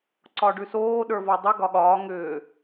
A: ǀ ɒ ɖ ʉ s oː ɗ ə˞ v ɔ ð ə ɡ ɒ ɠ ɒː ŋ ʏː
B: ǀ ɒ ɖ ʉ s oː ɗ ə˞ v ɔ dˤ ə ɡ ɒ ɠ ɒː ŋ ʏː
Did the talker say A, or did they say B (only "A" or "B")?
B